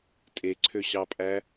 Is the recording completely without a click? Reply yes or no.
no